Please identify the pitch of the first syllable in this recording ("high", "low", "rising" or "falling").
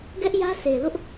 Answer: high